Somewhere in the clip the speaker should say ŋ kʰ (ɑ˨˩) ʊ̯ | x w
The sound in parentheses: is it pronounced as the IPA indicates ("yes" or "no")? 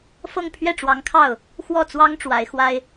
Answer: no